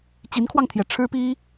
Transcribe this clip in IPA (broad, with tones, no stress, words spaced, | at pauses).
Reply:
t͡ɕi˧˥nkʰwɑ˧ŋt̪ʰjɛ˨˩ ʈ͡ʂʰɻ̩˥pi˥